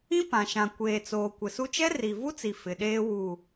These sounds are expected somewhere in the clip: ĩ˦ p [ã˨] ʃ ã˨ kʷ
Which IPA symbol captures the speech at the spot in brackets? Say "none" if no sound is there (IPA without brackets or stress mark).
ã˨